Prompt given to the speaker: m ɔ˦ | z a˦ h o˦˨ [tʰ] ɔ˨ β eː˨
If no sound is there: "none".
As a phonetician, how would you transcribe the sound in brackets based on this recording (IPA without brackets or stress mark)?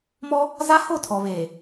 tʰ